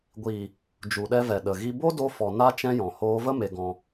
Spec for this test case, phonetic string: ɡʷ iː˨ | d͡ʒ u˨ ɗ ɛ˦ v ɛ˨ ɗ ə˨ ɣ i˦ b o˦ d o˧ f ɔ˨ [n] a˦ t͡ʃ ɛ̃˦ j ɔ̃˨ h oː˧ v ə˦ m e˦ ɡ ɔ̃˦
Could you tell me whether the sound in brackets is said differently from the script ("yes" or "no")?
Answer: no